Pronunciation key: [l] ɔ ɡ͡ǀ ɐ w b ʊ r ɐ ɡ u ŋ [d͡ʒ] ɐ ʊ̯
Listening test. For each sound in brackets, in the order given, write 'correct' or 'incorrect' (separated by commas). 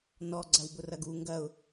incorrect, incorrect